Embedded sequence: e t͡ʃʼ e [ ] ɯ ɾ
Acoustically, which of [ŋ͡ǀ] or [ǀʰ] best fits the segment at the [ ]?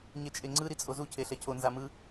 ŋ͡ǀ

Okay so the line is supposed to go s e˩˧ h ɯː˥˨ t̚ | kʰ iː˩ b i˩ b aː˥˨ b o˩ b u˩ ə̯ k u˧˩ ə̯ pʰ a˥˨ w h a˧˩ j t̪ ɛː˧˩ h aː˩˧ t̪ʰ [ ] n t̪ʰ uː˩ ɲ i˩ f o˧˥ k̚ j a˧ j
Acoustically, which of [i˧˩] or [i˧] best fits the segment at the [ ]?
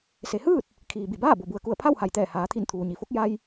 i˧˩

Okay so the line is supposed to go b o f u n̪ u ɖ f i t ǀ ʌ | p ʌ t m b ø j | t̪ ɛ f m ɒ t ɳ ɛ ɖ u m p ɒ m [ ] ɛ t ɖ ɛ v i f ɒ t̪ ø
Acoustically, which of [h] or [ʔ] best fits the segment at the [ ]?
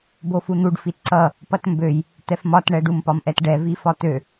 ʔ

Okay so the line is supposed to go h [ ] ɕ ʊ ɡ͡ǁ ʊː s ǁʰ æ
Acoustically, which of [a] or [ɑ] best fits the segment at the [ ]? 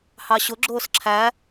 ɑ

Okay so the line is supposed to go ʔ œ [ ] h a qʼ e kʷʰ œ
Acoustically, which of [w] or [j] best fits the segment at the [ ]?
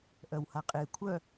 w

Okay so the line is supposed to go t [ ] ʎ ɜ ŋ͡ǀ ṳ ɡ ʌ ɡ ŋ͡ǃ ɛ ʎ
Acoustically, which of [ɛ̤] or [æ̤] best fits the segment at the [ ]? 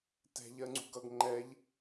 ɛ̤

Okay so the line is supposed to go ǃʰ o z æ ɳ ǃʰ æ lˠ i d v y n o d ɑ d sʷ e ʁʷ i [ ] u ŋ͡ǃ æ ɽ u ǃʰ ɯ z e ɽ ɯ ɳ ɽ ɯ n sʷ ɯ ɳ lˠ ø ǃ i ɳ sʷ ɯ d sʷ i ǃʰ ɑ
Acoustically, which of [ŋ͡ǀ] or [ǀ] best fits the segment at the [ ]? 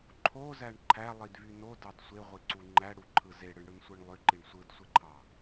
ǀ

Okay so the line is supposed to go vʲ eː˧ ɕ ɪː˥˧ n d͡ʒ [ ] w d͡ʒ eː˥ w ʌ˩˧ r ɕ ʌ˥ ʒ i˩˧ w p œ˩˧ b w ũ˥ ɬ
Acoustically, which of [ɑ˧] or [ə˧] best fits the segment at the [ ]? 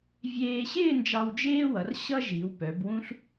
ɑ˧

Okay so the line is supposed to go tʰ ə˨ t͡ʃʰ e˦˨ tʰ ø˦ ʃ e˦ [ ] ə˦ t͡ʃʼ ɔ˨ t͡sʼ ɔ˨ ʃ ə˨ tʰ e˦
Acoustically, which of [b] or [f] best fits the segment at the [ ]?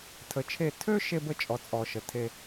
b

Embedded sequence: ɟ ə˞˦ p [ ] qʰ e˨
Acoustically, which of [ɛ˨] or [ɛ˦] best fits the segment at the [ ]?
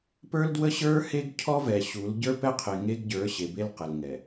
ɛ˦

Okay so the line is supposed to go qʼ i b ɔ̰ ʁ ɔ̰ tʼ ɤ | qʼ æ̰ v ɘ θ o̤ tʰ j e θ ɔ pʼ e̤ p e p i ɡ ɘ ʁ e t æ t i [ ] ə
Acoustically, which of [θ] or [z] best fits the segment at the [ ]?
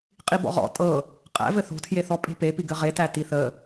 θ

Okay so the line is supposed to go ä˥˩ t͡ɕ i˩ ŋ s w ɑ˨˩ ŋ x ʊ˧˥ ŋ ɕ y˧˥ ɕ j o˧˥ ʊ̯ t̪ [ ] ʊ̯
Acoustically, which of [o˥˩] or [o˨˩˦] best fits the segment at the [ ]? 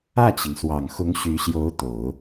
o˨˩˦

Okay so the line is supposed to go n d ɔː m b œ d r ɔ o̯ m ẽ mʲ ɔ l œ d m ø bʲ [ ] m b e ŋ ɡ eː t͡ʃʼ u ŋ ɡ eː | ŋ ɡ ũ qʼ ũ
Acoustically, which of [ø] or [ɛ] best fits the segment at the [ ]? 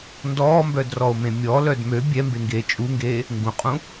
ɛ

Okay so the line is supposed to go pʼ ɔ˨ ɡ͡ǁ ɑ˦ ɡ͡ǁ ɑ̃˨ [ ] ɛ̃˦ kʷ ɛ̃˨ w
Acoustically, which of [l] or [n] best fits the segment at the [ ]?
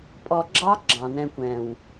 n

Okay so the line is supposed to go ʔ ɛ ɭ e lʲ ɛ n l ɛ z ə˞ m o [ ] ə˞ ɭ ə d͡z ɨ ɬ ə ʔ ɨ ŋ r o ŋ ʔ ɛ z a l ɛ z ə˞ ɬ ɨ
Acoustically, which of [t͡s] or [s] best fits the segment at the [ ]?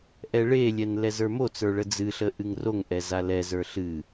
t͡s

